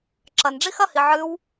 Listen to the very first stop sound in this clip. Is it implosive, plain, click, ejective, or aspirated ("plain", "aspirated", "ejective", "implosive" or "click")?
click